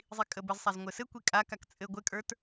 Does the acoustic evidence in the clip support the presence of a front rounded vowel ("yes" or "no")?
no